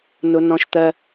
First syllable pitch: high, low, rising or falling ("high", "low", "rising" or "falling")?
high